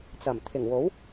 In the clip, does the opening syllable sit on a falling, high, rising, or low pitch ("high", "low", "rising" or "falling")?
low